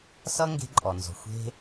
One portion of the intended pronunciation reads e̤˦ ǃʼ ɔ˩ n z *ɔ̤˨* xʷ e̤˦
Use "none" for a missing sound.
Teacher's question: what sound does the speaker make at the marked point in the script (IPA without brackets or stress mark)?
ɔ̤˨